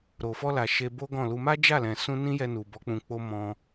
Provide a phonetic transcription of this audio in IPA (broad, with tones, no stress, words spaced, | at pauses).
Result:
ɾo˨fɔ˧la˨ ʃe˧bo˦ɡɔ̃˦˨lu˧ ma˦d͡ʒa˦˨lɛ̃˨sũ˧ nĩ˦jɛ˧nu˨ bɔ˨˦k͡pũ˧k͡po˦ mɔ̃˧